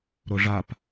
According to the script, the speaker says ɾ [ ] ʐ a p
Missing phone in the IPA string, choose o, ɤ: o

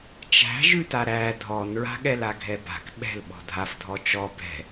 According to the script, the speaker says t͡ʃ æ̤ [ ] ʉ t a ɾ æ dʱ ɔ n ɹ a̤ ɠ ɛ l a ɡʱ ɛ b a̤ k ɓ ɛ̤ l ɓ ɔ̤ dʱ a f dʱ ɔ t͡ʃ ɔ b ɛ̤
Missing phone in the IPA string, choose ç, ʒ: ʒ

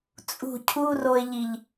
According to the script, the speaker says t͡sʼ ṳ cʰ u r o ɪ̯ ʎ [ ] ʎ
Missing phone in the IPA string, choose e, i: i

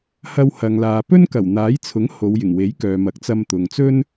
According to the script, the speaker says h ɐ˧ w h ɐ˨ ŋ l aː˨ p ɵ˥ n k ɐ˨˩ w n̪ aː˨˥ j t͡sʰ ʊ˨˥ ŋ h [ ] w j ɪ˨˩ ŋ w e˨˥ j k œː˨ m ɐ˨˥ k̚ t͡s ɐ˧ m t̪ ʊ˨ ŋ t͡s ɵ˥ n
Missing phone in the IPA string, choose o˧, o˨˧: o˨˧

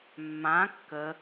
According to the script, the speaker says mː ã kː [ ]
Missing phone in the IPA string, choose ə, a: ə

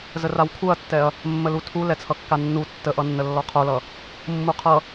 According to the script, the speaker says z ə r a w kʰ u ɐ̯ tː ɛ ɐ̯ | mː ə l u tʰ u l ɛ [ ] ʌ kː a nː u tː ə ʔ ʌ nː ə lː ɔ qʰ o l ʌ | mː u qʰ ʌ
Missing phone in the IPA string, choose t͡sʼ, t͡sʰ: t͡sʰ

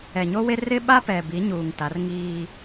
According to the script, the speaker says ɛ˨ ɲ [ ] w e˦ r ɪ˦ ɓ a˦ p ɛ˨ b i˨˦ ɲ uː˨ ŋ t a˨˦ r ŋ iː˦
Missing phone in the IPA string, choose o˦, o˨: o˦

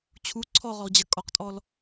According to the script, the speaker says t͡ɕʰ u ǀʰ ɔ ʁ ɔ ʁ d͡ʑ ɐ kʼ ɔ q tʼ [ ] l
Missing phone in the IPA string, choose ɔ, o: ɔ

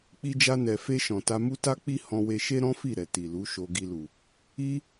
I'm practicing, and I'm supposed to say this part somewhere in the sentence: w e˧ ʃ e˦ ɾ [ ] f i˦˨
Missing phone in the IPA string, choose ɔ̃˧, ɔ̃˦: ɔ̃˦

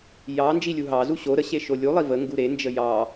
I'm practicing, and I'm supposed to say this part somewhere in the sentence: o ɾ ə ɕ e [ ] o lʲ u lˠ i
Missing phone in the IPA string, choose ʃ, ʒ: ʃ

